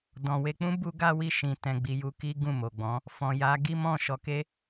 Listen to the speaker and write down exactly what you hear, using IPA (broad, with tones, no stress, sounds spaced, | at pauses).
d ɔ̃˨ w e˧ k͡p ũ˦ b u˦ ɡ a˦ w i˦˨ ʃ ĩ˧ t ɛ̃˧ ɡ͡b i˧ j u˧ k i˦ ɡ ũ˦˨ m o˨ ɡ͡b ɔ̃˨˦ | f ɔ̃˨ j a˨˦ ɡ i˦ m ɔ̃˦˨ ʃ ɔ˧ k e˦